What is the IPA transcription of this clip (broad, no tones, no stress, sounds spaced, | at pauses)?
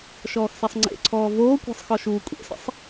ʃ ɔː x s ɛ sˤ ŋ͡ǀ ḛ ǀʰ ɔː v oː kʷ ɛ̤ sˤ x ɔ ʃ uː kʷʼ ḛ s ḭ sˤ